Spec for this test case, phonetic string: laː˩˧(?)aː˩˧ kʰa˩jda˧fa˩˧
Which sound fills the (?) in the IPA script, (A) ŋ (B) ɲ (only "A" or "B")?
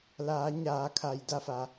B